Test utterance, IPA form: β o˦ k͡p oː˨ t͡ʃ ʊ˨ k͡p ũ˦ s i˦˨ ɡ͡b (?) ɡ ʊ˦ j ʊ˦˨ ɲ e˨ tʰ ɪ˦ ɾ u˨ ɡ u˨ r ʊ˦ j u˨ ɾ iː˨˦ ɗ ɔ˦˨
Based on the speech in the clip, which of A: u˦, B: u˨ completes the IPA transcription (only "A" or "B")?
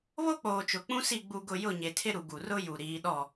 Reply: A